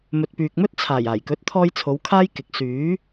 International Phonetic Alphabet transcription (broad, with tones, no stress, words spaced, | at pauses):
mɵ˨t̚pyː˨k̚mɵ˥t̚ t͡sʰaː˨˩j aː˨˩jkɵ˨˥t̚t̪ʰɔː˧j t͡sʰo˨˧wkʰaː˥jkɪ˨˥k̚ syː˨˥